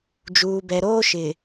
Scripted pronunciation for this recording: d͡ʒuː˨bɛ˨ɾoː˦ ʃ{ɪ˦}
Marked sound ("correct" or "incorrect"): incorrect